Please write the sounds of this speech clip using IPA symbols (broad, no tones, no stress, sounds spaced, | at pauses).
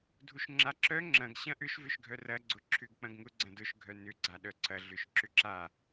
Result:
dʱ u ʃ ŋ͡ǁ a ǁ œ ŋ͡ǁ ɐ̃ ɡ ɕ ɐ̃ ʔ ʏ ʃ v ʏ ʃ ɡʱ œ r ɐ ɡ͡ǀ ʊ ǁʰ ʏ ɡ k͡p ɐ̃ ɡ ŋ ʊ ɡ͡ǀ ɐ̃ d ʊ ʃ ɡʱ œ n ʏ ɡ͡ǀ a ɗ œ ǀ ɐ ɮ ʏ ʃ ǁ ʏ ǁ a